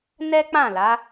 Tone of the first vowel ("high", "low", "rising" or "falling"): high